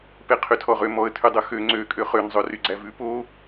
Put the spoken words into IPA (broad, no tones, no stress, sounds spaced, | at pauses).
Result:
p e qʰ y tʰ ɔ ʁ ø m ɔ ə̯ tʰ ʉ dˤ ɵ x ø ŋ͡ǀ ø kʼ ø χ ø n zˤ ɵ r y ɡ͡ǀ æ v ʉ p o